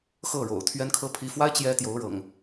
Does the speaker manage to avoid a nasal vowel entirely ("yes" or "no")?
yes